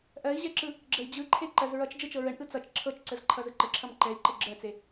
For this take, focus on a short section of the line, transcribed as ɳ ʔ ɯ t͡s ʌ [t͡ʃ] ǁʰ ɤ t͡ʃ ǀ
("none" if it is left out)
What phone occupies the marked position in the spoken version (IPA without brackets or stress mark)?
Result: t͡ʃ